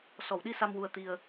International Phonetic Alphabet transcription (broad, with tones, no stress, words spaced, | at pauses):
sɔ˨˩˨wɗi˧ sa˧mwu˧ə̯t̪i˧ə̯